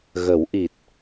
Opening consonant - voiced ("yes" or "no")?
yes